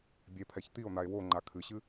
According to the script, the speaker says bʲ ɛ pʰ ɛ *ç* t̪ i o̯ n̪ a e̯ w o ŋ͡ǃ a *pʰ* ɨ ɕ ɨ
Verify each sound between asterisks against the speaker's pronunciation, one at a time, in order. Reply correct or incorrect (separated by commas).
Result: correct, incorrect